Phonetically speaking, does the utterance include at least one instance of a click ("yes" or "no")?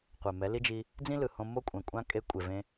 no